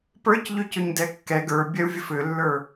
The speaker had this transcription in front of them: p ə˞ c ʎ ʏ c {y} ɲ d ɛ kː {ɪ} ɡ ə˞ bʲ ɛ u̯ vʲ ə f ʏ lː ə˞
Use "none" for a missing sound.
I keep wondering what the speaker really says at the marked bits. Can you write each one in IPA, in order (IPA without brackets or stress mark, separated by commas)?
ʏ, ɛ